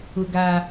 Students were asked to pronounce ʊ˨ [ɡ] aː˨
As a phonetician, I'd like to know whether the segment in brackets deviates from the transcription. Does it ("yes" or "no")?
no